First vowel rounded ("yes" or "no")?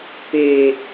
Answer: no